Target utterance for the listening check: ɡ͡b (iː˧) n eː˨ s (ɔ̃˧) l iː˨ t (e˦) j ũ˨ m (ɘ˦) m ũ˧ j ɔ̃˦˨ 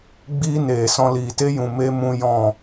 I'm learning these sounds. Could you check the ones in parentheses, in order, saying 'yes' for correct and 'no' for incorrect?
no, yes, yes, no

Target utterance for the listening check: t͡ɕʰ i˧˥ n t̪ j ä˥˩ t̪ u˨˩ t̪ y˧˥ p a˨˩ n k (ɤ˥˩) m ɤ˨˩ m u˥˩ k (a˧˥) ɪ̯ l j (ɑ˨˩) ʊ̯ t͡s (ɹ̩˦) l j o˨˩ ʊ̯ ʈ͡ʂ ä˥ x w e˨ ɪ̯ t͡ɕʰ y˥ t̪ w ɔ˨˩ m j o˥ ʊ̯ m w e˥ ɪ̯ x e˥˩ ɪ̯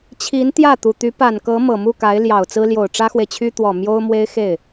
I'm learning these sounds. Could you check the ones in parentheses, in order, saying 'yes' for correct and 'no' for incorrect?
no, yes, yes, no

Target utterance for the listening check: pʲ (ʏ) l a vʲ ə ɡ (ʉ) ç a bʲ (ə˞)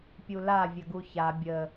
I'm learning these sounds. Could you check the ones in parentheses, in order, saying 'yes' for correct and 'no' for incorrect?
no, no, no

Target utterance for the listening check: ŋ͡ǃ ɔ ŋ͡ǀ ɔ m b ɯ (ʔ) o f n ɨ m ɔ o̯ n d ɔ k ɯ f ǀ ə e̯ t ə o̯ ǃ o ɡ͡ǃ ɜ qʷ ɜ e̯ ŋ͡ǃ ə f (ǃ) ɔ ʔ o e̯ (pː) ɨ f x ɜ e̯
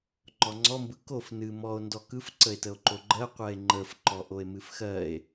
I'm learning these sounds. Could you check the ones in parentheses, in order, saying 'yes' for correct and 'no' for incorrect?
no, yes, no

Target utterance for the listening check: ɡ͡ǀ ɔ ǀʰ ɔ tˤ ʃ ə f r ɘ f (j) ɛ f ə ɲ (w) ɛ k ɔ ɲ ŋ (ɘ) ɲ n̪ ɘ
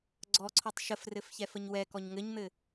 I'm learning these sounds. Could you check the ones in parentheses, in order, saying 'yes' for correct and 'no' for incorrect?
no, yes, yes

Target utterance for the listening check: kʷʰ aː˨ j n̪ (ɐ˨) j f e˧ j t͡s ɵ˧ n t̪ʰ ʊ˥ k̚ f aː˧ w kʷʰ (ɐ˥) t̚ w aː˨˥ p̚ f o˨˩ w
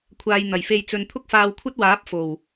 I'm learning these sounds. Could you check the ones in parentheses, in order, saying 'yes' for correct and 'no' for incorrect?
no, yes

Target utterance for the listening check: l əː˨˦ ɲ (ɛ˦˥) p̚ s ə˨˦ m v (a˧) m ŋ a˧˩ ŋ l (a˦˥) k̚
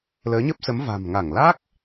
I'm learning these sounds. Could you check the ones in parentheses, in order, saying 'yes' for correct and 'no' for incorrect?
no, no, yes

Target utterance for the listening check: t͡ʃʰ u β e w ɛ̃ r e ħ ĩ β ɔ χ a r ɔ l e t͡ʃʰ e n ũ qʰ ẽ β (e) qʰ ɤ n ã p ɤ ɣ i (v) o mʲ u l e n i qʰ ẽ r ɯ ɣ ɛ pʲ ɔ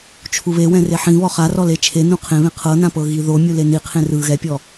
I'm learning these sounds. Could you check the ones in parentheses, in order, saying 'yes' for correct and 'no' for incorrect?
no, no

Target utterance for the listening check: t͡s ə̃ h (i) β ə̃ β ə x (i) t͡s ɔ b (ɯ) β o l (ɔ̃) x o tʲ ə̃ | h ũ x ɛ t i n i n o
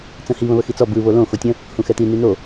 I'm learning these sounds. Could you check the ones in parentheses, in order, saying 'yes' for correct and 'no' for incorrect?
yes, yes, yes, no

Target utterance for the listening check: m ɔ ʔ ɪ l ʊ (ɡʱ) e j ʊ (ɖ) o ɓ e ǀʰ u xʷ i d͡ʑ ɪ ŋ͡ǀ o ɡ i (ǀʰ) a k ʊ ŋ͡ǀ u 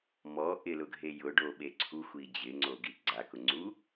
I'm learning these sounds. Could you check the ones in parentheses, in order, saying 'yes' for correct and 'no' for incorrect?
yes, yes, no

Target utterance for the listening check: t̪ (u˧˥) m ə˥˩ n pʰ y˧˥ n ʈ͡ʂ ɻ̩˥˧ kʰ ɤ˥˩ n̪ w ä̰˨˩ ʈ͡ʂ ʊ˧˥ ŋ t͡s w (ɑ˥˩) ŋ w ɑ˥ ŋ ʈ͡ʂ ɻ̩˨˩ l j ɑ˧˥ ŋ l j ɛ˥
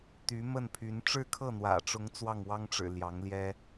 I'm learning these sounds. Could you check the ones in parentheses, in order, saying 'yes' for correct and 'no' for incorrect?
no, yes

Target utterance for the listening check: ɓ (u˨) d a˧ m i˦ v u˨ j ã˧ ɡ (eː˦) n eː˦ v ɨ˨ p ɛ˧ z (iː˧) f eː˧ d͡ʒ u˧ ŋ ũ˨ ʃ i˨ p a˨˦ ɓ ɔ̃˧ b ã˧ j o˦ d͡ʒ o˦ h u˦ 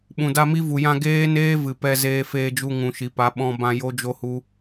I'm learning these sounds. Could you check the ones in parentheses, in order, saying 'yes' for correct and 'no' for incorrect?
no, yes, no

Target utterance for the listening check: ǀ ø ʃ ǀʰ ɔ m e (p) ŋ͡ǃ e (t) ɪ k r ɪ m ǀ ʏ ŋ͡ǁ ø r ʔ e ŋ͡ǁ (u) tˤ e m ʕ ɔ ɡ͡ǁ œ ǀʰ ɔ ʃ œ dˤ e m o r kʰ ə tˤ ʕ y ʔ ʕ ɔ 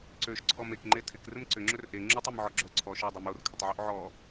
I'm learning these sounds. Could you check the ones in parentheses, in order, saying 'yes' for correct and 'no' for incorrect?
no, no, yes

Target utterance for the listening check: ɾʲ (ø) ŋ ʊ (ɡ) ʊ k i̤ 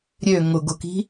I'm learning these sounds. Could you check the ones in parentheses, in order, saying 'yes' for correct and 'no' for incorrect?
yes, yes

